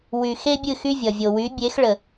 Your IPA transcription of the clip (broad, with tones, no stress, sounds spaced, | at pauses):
w y˨ x e˦ bʲ ɨ˦˨ x y˦ vʲ ʌ˨ vʲ o˨ w y˨˦ bʲ e˨˦ x ɭ ə˨